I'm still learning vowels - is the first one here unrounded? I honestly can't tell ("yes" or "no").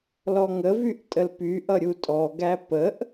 no